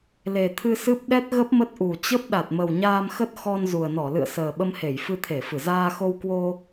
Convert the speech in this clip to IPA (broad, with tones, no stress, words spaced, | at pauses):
le˨˩t̪ʰɨ˧sɨ˦˥p̚ ɗɛ˦˥t̚ ɣə˦˥p̚mə˦˥t̚ʔu˨˩ t͡ɕə˦˥p̚ ɗa˨˩t̚mə˨˩wɲaː˧mxə˦˥t̚ xɔ˧nzu˨˩ə̯nɔ˧˩ lɨ̰˧˨ə̯səː˨˩ɓə˧mhe˧˩j fɨ˧t̪ʰe˧˩fɨ˧˩ zaː˧xo˧wkwo˧